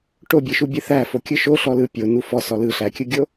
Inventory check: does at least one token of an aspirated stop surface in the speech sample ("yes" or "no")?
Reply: no